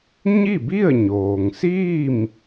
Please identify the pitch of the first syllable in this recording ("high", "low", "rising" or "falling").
falling